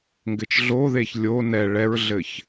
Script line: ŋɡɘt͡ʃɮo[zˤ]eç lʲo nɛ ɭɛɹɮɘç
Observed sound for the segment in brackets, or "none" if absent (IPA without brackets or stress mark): ð